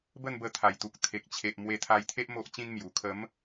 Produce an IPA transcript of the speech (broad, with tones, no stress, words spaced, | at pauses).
bə˥˧nbə˧t̪ʰa˨˩jt̪u˨k̚ t̪ʰe˨k̚t͡ɕʰe˨ʔ mwe˧t̪ʰa˧jt̪ʰe˦ʔ mo˦ʔt͡ɕĩ˦nmju˨˩ kʰə˨˦m